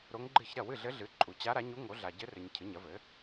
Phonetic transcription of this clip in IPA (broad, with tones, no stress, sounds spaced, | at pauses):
ɾ o˧˥ ŋ ɡ͡ǃ ɨ˥˩ ç ɾ ɐ˥˩ w ɨ˥˩ ɮ ɘ˧˥ ɮ ɨ˩˥ ǃʼ u˨ t͡ɕ a˧˥ ɾ a˩˥ ɲ u˧˥ ŋ o˩˥ ɮ a˨ ɟ ɘ˧˥ r ɘ˨ ɲ cʰ ɨ˩˥ ɲ ɐ˩˥ v ɘ˩˥